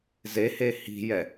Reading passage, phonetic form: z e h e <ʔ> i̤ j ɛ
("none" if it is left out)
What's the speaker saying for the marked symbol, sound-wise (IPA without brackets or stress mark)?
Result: h